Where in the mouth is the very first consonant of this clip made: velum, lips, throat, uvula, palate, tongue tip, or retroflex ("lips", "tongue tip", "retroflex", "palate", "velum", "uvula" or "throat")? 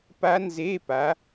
lips